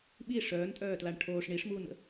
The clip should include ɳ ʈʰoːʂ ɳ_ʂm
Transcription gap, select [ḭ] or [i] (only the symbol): i